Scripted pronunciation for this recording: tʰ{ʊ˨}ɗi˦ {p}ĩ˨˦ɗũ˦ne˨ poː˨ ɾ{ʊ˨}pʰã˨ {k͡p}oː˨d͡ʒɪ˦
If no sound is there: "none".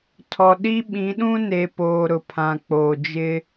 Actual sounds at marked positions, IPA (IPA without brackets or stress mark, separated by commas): ɔ˨, ɓ, ʊ˨, k͡p